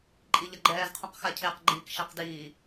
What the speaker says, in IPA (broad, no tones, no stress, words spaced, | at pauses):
ǃʼiʎʌɡ͡ǃɛːz qʰũqxacʰeq ɡ͡ǃiːkʃɛqdiː